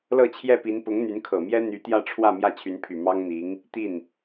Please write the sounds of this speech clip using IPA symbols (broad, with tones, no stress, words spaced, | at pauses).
lɤ˥˧t͡ɕʰjɛ˥˩pi˧˥n pʊ˧˥ŋn̪y˧˥nkʰɤ˨˩mjɛ˥ n̪y˧˥ t̪jä˥˧ʈ͡ʂʰwä˥˧ mjä˥˩t͡ɕʰy˧˥npʰy˨˩ mɑ˥ŋn̪i˧˥ŋ | t̪i˥˩n